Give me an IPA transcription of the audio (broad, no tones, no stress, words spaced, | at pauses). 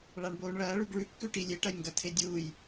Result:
ɭaɳboːɳɭɐː ɭʉɡɭʉkːʉ ʈilʲeʈɐjŋɡɐ tʰedʲuːj